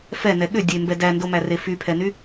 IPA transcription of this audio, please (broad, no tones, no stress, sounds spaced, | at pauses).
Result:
f ɛ n ɛ ɠ ʏ dʲ e m b ɛ d æ n d o m æ r e f y pʰ ɛ n y